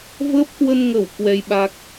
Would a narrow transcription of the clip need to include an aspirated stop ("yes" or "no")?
no